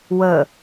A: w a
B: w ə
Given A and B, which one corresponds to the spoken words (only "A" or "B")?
B